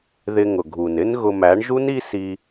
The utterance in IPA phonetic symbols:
ð ɪ˧ ŋ ʊ˨ ɡʱ u˨ n ɪ˦ n ɣ ʊ˧ m æ˨˦ ɳ ʒ u˦ n i˦ s i˧

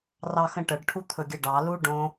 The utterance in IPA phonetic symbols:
r ɑ x ə̃ ʈ ə ɖ ʈʰ u t̪ʰ ɵ ɡʲ ə ɖ ɑ l u ɖ õ

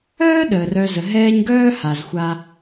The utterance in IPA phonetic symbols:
œː˥ ɗ əː˩ r œ˨ z ə˩ ɦ ɛː˦ ɲ ɡ œː˥ h a˩ z xʷ a˨

